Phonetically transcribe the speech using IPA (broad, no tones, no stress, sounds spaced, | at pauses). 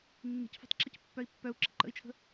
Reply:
nː i̤ c f ɔ̤ tˤ ǁ ə c pː œ i̯ pː œ u̯ ǁ ə̰ ǃ ə̰ i̯ t͡ʃʰ ə̤